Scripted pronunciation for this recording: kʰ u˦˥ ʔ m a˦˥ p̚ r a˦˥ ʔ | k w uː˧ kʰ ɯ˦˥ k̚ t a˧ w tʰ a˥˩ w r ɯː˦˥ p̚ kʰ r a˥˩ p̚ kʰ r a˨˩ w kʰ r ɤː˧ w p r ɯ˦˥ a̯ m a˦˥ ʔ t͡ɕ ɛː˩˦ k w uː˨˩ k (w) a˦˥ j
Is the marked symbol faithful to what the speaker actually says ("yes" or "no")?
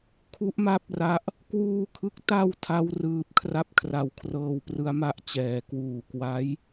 yes